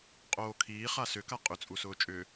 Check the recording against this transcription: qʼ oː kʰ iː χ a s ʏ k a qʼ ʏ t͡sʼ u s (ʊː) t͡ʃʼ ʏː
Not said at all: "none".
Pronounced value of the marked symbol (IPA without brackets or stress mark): ʊː